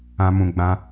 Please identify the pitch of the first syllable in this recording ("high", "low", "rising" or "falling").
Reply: high